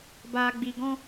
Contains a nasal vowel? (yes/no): yes